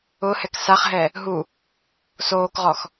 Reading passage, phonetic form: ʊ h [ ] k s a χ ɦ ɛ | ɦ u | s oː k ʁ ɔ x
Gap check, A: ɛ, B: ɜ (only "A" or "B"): A